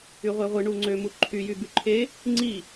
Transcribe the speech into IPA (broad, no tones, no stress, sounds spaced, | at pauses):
y ʁʷ e ʁʷ ɯ ɳ u ŋ͡ǀ ø m u ǃʰ y j y b y ǃʰ e | ŋ͡ǀ i